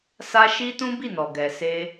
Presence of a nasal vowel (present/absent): present